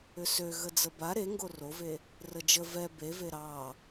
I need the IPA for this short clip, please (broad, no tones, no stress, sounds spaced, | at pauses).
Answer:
ʏ s ø ɣ ə d͡z ə b a ɾ e ŋ ɡ o r o v e | r ə d͡ʒ ə v ɛ b e v e ɾ ɑ